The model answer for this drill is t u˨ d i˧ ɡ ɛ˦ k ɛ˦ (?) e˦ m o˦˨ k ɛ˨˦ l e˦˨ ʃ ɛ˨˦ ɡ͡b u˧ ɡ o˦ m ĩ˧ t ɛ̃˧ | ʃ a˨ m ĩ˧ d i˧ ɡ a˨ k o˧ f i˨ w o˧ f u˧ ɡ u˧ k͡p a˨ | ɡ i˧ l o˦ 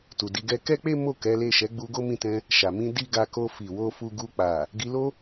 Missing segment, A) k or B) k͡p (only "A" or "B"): B